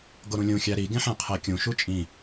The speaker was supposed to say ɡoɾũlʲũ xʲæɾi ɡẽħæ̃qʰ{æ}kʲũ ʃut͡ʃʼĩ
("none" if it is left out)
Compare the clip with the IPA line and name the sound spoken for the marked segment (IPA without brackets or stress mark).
æ